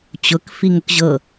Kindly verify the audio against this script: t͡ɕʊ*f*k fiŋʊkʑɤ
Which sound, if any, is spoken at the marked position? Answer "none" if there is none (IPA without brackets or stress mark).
none